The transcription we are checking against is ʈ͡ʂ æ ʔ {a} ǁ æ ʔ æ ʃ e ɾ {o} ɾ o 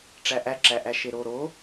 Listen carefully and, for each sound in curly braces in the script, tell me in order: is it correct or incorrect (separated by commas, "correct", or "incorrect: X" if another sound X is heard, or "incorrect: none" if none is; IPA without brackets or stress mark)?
incorrect: æ, correct